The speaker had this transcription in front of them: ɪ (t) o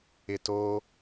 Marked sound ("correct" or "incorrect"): correct